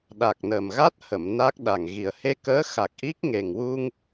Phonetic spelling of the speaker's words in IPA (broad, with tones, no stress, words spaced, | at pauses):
ɗa˨˩k̚nə˨˩mɣa˦˥t̚hə˨˩˨m na˦˥k̚ɗa˨˩ŋ ɣi˨˩ə̯ he˧kəː˧˥xa˨˩k̚ ʔi˦˥k̚ ŋe˨˩ŋ wu˧ŋ